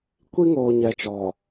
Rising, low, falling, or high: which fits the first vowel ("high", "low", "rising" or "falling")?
high